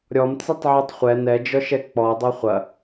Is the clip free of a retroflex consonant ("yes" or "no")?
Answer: yes